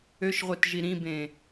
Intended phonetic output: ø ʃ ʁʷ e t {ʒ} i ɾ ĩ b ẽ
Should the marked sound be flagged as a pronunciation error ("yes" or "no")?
no